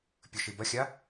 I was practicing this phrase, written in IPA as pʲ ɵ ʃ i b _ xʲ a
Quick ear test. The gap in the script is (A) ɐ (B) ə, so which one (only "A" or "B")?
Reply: A